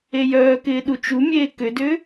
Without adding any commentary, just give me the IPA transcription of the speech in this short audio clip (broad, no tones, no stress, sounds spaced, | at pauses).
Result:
e j œː k ɪː ɗ u t͡ʃ u mʲ eː k ʏ d ʏ